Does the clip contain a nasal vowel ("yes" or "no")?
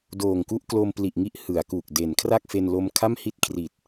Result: no